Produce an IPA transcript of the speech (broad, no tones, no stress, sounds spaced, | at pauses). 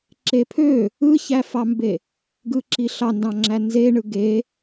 ǁ e pʰ ø | ɯ ç æ f ɑ m b e | ɡ ɯ ǁ i ɬ ɑ n d ɑ̃ ŋ͡ǁ æ n z e ɳ ɯ ɡ e